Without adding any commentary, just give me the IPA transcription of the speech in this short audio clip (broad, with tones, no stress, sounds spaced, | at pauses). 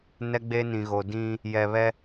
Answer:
n ɛ˦ ɡ͡b e˦ n ĩ˨ ɣ o˨ d ĩ˦ | j ɛ˨ β ɛ˦